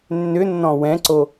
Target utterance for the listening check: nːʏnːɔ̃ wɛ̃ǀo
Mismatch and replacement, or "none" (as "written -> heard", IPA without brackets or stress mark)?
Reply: none